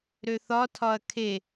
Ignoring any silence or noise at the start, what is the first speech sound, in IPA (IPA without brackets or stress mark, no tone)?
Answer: ɾ